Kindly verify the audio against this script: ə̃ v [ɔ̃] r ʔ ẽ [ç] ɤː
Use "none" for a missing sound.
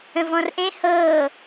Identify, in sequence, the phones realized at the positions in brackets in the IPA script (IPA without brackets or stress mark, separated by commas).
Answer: ɔ̃, h